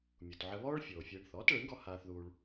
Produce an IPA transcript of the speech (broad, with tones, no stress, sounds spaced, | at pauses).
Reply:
mʲ u˩ t ʕ ə˧ β ɔː˥ ɭ fʲ oː˩ fʲ eː˧ ɳ θ ɔː˩˥ t ɭ e˩˥ ɳ ɡ ɔ˧ h aː˧ θ ð uː˧ ɭ